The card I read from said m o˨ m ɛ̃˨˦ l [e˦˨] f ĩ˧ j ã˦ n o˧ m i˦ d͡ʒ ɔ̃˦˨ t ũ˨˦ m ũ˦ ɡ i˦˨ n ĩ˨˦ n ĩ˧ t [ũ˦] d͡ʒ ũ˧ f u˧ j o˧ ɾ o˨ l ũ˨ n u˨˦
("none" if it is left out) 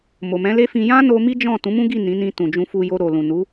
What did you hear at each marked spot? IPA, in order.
e˦, ũ˨

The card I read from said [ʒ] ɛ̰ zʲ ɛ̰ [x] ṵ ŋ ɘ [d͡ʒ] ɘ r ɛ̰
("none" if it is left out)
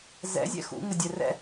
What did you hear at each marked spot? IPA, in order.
z, x, dʲ

